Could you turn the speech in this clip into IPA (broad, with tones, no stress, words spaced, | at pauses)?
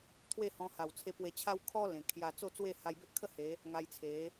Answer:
t̪ʰwe˥˧hɔ̃˧ha˨˩wt͡sʰe˧ pwe˧t͡ɕʰa˦w kʰɔ˦ lẽ˨˩kʰja˧ t͡so˥˧t͡swe˥˧ha˧j be˦ʔkʰə˥˧ he˨˦ | ŋa˧jt͡sʰe˨˦